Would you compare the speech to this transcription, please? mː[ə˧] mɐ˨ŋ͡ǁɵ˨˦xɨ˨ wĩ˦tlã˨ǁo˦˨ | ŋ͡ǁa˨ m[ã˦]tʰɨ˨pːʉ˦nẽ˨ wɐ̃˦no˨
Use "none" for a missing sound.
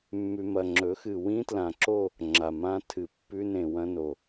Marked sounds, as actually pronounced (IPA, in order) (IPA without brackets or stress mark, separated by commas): ʉ˧, ã˦